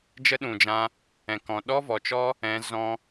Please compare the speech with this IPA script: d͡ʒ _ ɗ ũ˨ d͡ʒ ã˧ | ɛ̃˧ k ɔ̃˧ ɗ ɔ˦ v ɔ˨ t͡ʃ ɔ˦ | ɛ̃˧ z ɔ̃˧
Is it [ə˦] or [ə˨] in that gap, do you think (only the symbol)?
ə˦